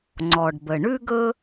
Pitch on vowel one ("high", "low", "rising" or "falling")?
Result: low